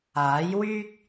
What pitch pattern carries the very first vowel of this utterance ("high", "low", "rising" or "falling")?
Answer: rising